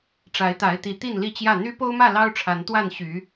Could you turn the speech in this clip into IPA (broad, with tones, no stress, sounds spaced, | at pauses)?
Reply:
ʈ͡ʂ a˨˦ ɪ̯ t̪ a˨˦ ɪ̯ t̪ i˨˦ t̪ i˥˨ n l i˥˨ t͡ɕ j ä˥˨ n̪ y˦ p o˦ ʊ̯ m ä˥˨ l ɑ˦ ʊ̯ ʈ͡ʂʰ a˨˦ n t̪ w a˥˨ n ɕ y˨˦